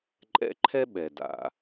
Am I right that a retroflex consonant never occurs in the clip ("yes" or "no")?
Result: yes